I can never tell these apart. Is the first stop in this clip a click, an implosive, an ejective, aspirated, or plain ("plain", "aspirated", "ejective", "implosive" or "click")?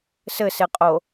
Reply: ejective